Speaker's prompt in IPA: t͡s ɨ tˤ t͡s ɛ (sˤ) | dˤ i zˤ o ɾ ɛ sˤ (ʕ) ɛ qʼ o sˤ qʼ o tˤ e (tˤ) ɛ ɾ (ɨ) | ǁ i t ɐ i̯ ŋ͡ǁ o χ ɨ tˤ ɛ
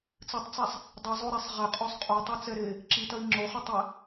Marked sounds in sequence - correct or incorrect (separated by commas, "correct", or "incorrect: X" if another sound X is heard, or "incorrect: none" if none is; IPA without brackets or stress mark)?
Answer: correct, incorrect: ʁ, incorrect: t͡s, incorrect: e